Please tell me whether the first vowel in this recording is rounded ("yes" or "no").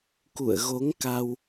yes